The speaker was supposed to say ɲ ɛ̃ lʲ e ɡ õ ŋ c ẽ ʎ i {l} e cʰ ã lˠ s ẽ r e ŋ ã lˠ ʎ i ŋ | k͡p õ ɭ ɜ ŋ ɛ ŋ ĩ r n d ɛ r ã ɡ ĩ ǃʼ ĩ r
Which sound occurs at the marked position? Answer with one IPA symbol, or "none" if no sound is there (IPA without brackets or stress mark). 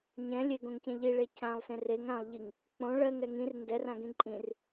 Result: ɭ